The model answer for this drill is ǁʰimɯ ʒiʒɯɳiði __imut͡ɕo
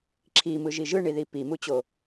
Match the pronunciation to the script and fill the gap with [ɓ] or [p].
p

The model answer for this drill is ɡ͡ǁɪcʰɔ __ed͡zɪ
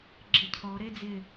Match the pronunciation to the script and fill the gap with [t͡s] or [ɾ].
ɾ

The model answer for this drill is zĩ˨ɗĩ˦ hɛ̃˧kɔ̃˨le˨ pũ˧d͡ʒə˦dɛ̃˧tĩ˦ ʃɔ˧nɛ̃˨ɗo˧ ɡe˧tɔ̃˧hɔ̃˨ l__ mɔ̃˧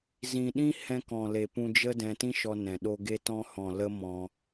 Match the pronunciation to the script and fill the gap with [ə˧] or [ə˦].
ə˦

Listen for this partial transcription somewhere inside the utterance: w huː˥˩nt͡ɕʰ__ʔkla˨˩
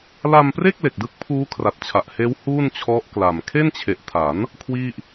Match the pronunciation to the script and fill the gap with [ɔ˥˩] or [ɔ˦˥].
ɔ˦˥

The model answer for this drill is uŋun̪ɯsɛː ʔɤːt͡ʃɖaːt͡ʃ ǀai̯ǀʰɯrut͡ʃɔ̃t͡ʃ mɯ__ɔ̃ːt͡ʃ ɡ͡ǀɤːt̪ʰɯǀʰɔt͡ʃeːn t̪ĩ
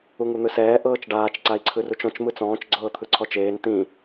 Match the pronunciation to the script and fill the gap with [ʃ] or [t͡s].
t͡s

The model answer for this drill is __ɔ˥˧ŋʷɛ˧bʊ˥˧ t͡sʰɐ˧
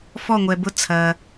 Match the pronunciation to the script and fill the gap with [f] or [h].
f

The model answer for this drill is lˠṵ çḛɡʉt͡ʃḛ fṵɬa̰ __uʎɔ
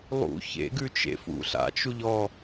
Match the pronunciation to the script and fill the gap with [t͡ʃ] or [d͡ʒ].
t͡ʃ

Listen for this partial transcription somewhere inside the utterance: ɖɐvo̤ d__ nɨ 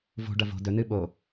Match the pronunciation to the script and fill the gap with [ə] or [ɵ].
ɵ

